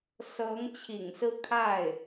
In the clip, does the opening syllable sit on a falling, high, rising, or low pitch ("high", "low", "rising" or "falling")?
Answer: rising